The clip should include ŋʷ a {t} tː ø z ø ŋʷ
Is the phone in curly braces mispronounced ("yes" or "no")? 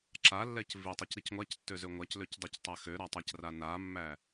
yes